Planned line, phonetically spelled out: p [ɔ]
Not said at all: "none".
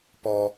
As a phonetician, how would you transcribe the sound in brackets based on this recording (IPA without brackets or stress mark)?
ɔ